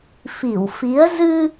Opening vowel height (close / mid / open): close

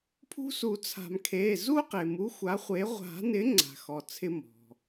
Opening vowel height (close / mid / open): close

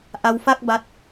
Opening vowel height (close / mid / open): open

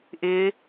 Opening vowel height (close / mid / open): close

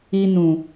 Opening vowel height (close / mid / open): close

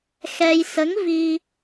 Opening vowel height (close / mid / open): mid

